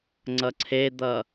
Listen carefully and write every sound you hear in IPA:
ŋ͡ǀ ʌ ǀʰ e d̪ ʌ

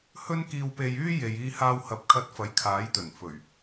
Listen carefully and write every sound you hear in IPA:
h ɵ˥ n k iː˧ w p e˧ j yː˥ j e˨ j iː˧ h aː˧ w h ɐ˨˥ p̚ kʰ ɐ˧ t̚ f ɐ˨˥ j kʰ aː˨˥ j t̪ ɵ˨˩ n f ɵ˨˩ ɥ

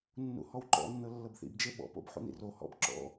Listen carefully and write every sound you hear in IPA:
nː ṵ h ɔ w ǃ ɔ̰ nː ɤ lː ɤ b θ ḭ b d͡ʒ e ɓ ɔ̰ p o̰ b ħ ṵ n ḭ r o h ɔ̰ b ǁ ɔ̰

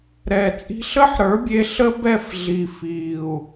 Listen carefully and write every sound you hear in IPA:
ɾ ɛː˨ t͡sʼ i̤˧ ɬ əː˦ ħ ɾ ə˞˨˦ bʲ e˧ ɬ ə˦ b ɛ˦˨ f ɮ i˨ f iː˨ u̯

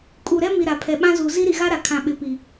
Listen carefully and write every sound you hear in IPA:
kʼ u˨ ɾ ɛ˦ m i˨ ɾ a˨ pʰ ɛ˨ ɓ ã˦ z u˨ z i˦ ɾ i˨ ɣ a˦ ɾ a˨ kʰ ã˨ ɓ ɪ˨ p i˨

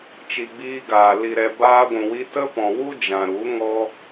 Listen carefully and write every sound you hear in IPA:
t͡ʃ i˨ ɡ͡b iː˧ ɡ aː˨ l i˨ ɾ ɛ˨ b aː˧ ɡʷ ũ˨ w i˧ t ə˦ p ɔ̃˨ w u˦ d͡ʒ ã˨ ɾ u˨˦ ŋ ɔ˦

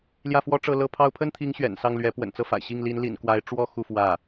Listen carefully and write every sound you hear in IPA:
l j ä˥˩ f w ɔ˥ ʈ͡ʂ ɤ˥˧ l ɤ˥˩ pʰ ɑ˥ ʊ̯ pʰ ə˥ n t̪ʰ i˧˥ ŋ ɕ ɥ ɛ̰˨˩ n s ɑ˥˩ ŋ l ɥ ɛ˧˥ p w ə̰˨˩ n t͡s ɤ˥˩ f a̰˨˩ ɪ̯ ɕ i˥˩ ŋ l i˧˥ n l ḭ˨˩ n k w a˧˥ ɪ̯ ʈ͡ʂ w ɔ˥ x u˥˧ f w ä˥˩

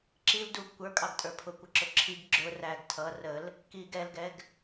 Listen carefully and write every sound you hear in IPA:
ǁ i l d u ɡ kʷ ə˞ kʼ ɑ ɡ tʼ ə˞ pʰ ʊ kʷ ə ǁ ʊ ǁʰ i ɡ ɡ͡ǁ ʊ r æ ɡ tʰ ʌ r ə l | k i ɡ ɛ l ɡ ɛ ɡ

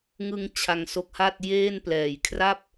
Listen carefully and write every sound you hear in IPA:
ŋ ɯ˧ ŋ t͡ɕʰ a˧ ŋ s o˦˥ k̚ h a˥˩ t̚ j eː˥˩ n p l ɛː˨˩ j kʰ r a˥˩ p̚

